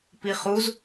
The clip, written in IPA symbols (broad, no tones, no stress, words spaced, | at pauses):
piχuz